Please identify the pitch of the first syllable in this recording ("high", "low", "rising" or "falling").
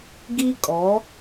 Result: high